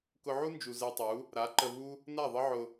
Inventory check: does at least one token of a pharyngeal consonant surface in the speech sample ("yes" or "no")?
yes